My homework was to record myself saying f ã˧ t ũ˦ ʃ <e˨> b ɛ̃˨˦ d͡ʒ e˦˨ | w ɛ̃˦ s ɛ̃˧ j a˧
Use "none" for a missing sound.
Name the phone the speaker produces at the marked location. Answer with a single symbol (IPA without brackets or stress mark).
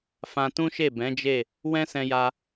e˦˨